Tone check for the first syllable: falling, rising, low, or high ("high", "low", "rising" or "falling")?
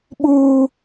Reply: high